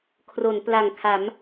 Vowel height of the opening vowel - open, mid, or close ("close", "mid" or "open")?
mid